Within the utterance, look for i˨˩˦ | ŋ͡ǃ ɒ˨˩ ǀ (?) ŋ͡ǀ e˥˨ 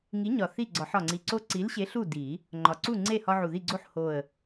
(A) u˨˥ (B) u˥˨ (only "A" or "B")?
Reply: B